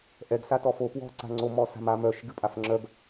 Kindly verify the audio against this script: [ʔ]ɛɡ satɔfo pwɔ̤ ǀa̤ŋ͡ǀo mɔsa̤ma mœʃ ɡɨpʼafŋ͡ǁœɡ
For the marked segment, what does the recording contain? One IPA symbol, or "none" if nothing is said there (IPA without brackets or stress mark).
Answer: ʔ